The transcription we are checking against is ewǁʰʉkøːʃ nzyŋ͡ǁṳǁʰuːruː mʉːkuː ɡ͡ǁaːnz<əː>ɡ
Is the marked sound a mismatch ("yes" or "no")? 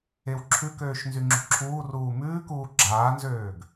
yes